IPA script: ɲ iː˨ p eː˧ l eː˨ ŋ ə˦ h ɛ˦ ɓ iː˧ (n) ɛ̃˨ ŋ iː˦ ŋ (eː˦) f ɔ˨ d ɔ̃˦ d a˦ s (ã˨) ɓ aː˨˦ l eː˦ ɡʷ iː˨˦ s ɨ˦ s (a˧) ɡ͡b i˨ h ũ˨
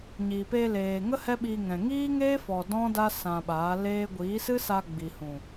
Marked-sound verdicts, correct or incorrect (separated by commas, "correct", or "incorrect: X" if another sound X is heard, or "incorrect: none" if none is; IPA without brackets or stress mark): incorrect: ŋ, correct, incorrect: ã˧, correct